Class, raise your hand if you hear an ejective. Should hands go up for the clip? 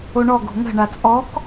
yes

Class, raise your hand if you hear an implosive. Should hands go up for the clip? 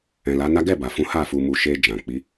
no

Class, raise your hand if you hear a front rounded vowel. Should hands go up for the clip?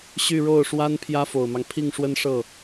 yes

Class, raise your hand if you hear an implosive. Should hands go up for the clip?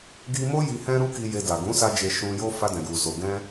no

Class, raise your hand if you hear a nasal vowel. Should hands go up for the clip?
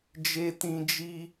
yes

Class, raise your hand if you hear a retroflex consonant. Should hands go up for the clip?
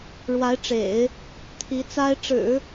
yes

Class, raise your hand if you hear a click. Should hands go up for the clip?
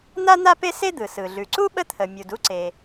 yes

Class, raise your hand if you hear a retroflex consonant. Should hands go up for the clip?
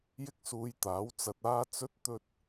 no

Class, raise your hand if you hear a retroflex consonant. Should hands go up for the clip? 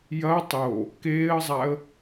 no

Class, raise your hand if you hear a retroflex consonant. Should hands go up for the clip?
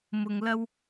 no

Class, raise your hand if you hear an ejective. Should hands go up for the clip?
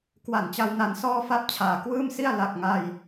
no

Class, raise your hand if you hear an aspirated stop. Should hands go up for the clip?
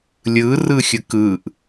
no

